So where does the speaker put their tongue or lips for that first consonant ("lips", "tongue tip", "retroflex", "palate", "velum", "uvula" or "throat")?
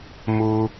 lips